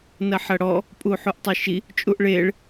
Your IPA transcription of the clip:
n ɐ ħ ɐ ɽ ɔ | pʼ u ħ u ʔ tˤ e ʃ i | t͡ʃʼ u ʔ ɭ e ɭ

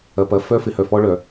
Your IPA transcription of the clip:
ɐ˨ p ɐ˨ f œ˦ f ɪ˨ h œ˨ f ɔ˦ ɭ œ˨

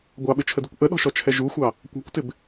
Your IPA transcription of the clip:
ɡʷ ɑ ɓ ɪ t͡ʃʰ ə d i kʷ ʔ ə ɗ ɔ̤ ʃ ɔ t͡ʃʰ ɛ ʒ u xʷ ɑ | kʷ æ̤ kʷ t ɪ b

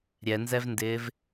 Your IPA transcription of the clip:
ɾʲ ɛ n z ɛ v n d ɪː v

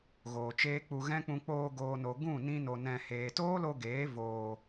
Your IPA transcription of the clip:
ɣ oː˨ t͡ʃ eː˦ k͡p u˧ ɣ ɛ̃˦ k͡p ũ˧ k͡p oː˧ ɡ oː˨ n o˨ ɡ ũ˦˨ n ĩ˦ n o˧ n ɛ̃˧ h eː˨ t oː˦ l o˧ ɡ eː˨˦ v oː˨

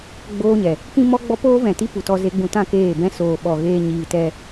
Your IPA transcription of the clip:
ɡ͡b oː˧ ɲ ɛ˨ | k ĩ˦ m ɔ˦ ɡ͡b ɔ˦ p oː˦ v ɛ̃˨ t i˦ p u˨ t ɔ˧ z e˧ ɡ͡b ũ˧ t ã˦ k eː˦˨ b ɛ̃˦ s oː˧ ɓ ɔ˧ ɣ eː˦ ɲ iː˧ t ɛ˦

